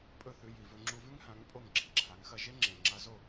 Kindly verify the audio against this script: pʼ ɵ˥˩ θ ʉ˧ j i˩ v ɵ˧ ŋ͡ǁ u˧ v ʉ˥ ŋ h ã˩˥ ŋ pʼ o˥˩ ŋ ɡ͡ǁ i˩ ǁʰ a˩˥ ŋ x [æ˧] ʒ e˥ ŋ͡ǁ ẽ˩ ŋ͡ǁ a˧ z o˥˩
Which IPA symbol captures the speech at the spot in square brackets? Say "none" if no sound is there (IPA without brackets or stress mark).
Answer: ɐ˧